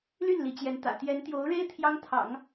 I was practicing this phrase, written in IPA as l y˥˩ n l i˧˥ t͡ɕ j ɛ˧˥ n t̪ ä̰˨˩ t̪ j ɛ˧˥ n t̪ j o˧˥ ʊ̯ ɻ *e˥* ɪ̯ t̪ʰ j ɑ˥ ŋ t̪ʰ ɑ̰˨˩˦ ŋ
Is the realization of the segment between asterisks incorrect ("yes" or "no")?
no